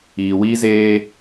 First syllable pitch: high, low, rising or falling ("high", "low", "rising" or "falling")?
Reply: low